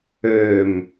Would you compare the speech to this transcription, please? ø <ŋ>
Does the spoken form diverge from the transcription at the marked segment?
yes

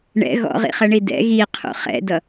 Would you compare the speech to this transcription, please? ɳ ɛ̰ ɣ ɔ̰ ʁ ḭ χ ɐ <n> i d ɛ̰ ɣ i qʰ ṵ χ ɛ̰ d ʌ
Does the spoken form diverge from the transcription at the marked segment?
yes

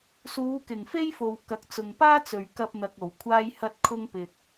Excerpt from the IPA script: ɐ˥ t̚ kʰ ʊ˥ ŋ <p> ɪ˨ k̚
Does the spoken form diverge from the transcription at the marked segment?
no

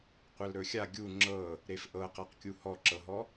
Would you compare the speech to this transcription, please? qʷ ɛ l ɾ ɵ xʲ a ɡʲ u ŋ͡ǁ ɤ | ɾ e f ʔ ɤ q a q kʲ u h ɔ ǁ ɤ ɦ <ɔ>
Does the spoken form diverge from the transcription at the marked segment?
no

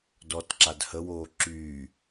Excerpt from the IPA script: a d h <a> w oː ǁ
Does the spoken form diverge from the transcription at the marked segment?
yes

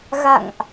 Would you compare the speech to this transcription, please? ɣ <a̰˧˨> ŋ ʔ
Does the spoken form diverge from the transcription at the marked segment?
no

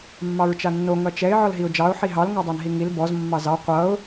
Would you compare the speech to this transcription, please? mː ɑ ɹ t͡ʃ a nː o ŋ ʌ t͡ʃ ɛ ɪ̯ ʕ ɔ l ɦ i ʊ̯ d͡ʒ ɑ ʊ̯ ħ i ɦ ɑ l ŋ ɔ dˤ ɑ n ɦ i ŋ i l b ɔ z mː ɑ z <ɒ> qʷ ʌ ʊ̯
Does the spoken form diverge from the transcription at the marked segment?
yes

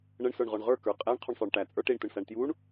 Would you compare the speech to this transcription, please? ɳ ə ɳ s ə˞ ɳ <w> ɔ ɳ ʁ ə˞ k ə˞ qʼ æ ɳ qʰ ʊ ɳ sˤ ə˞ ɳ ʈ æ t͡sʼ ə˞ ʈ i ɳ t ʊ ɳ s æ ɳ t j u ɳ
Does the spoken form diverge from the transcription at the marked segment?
yes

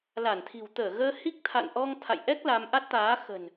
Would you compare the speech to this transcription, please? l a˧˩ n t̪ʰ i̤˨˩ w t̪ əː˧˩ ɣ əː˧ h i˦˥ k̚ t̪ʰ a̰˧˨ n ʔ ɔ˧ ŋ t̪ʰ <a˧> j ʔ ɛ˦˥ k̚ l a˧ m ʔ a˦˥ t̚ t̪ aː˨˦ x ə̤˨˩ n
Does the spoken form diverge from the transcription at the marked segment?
yes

